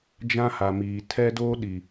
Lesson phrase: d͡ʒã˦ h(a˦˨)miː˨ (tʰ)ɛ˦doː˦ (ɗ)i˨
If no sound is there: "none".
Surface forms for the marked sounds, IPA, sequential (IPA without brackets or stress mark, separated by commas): a˨, tʰ, ɗ